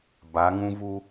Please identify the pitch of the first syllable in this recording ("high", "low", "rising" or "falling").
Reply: rising